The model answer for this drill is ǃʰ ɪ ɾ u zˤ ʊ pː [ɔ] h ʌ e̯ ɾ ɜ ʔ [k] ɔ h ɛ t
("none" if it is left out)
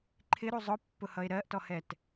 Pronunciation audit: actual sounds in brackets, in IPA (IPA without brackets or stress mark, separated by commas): ʊ, t